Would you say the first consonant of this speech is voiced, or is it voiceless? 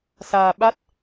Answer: voiceless